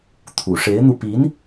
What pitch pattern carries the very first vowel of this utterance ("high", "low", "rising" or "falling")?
low